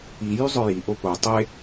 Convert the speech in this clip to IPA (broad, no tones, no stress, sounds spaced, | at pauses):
i j y zˤ œ j i ʔ o p o tˤ e